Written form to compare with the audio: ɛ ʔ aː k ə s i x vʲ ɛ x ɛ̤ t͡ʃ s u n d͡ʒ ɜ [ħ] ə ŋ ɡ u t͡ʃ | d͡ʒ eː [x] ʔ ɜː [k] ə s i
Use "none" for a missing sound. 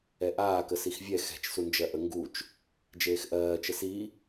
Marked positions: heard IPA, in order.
ʔ, x, t͡ʃ

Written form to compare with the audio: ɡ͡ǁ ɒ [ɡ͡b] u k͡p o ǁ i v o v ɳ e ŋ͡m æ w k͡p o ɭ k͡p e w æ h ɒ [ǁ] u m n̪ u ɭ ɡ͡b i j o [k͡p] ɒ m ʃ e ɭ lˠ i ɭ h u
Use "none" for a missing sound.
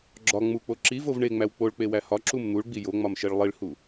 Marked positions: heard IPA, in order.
ŋ͡m, ǁ, ŋ͡m

